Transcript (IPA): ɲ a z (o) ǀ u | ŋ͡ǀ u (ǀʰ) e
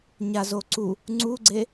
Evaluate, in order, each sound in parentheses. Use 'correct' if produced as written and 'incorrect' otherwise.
correct, incorrect: ɡ͡ǀ

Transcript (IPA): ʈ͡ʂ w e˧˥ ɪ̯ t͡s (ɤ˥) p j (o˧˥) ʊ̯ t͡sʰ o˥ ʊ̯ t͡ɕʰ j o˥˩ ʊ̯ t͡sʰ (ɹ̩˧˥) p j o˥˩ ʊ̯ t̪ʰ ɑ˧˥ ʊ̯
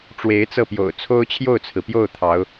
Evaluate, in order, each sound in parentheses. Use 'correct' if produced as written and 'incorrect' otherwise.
incorrect: ɤ˥˩, incorrect: o̰˨˩, incorrect: ɹ̩˩

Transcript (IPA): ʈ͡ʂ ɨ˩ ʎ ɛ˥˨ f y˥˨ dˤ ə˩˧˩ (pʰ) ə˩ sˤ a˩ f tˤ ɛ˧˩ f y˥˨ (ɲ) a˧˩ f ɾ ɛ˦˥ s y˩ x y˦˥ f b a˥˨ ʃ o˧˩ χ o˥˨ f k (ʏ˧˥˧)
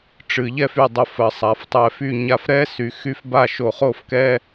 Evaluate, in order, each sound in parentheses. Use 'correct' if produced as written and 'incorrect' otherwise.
incorrect: f, correct, incorrect: ɛ˧˥˧

